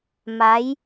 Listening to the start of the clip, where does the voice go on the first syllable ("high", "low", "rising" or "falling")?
rising